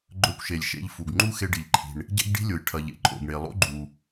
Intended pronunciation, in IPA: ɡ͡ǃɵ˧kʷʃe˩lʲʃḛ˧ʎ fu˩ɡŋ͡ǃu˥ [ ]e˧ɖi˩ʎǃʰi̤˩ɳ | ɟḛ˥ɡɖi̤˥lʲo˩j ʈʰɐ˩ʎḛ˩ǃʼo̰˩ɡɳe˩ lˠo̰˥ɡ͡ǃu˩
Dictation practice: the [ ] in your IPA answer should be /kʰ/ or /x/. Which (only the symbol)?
x